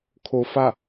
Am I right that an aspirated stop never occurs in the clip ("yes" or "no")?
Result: no